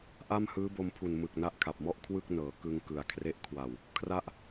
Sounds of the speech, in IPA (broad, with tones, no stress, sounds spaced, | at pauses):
ʔ a˥˩ m h ɯː˦˥ b o˧ m pʰ u˨˩ n m ɯ˨˩ k̚ n a˦˥ ʔ kʰ a˨˩ p̚ m ɔ˥˩ ʔ kʰ w ɯ˥˩ k̚ n ɤː˩˦ k ɯ˧ ŋ k ɯ˨˩ a̯ kʰ r e˦˥ ʔ kʰ w a˨˩ w | kʰ r a˦˥ ʔ